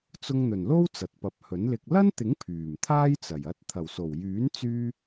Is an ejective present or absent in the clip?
absent